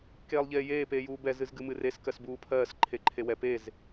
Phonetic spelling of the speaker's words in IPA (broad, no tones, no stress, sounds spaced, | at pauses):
k eː lˠ ʎ eː j eː p eː j uː b ɛ z ɨ z ɡ ɨ m ɨ r e s k ɜ s b uː pʰ ɜː s ǃʰ e ǃʰ e w ɛ p e z